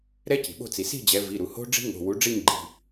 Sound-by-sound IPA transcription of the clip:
ɾ ɛ˦˥ c i̤˩ ɓ o̤˦˨ t͡s i˩ s i̤˦˨ d͡ʑ ɛ˩˧ v i˩˧˩ ɾ u˩ h o̤˦˥ ɖ͡ʐ i̤˦˥ ŋ o̤˩˧˩ w u˩˥ ɖ͡ʐ i˦˨ ɲ ɡ͡ǃ i̤˩˧˩

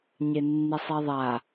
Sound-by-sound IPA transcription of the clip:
ɲ e nː i sˤ e ðˤ a

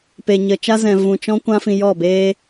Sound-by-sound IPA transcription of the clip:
p e˨ ɲ ə˨ t͡ʃ a˦ z ɛ̃˨ v ũ˨ t͡ʃ ɔ̃˦ kʷ ã˦ f ĩ˧ j ɔ˦˨ b eː˦

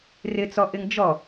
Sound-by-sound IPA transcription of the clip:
r ɪ t͡s ɔ ʔ ɪ ŋ d͡ʒ ɔ

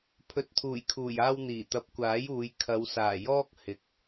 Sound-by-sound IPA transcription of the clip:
pʰ ɵ˨ t̚ t̪ʰ uː˨˩ j kʰ uː˨˩ j aː˧ w n̪ iː˨˩ t̪ ɐ˨˥ p̚ kʷ aː˨˥ j uː˨˧ j kʰ ɐ˨˧ w s aː˨˩ j ɔː˥ k̚ h ɪ˨ k̚

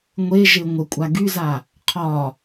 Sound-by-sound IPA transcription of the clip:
ŋʷ e ʒ e ŋʷ ə kʷʼ a ɡ y z a | qʰ ɒ

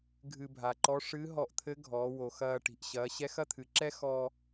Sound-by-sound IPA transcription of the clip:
ɡʱ ɨ˧ bʱ a˩ ǃ ɔ˧˥ ʂ ɨː˧˥ ɦ ɔ˧ ʔ t̪ʰ ɘ˧˥ ɡʱ ɔː˩˧ w o˩ x ɐː˧ ʈ i̤˩ ʔ ɕ ɐː˩˧ ɕ ɛ˧˥ x ɐ˥ t̪ʰ ɨ˩˧ ǁ ɛ˥ x ɔː˧

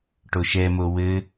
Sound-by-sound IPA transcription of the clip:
ʈ o ʃ ɛ m o w ɘ

